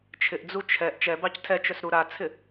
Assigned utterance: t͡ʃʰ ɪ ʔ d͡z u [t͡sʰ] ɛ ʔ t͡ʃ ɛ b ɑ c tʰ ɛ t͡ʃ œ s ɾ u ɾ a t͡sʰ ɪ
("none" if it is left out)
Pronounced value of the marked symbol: t͡ʃʰ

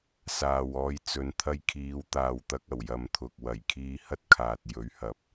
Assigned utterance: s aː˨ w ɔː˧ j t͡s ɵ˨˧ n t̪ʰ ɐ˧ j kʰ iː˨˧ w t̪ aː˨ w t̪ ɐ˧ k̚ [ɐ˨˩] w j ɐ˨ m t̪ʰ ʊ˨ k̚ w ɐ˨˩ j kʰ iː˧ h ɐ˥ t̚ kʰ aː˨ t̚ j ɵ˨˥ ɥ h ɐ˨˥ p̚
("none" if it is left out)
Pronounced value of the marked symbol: ɐ˨˩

